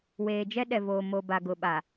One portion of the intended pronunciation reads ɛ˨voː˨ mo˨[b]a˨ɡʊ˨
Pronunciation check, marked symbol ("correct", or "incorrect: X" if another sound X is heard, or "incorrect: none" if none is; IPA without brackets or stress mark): correct